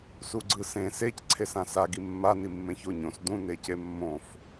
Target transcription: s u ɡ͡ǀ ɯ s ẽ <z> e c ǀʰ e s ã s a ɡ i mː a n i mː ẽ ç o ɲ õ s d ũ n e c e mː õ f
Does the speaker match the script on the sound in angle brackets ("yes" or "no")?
no